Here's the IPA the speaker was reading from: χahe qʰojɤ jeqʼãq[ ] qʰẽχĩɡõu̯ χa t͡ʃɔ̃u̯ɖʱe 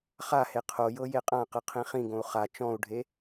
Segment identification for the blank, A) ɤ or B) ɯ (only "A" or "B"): B